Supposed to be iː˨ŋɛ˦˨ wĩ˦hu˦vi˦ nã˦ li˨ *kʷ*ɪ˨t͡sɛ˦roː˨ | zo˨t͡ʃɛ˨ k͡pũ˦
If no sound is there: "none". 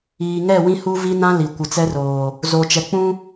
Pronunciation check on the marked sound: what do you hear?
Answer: kʷ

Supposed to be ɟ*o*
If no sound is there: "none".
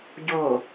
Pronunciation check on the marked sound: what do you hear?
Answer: o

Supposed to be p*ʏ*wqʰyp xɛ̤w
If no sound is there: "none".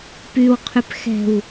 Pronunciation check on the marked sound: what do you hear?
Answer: y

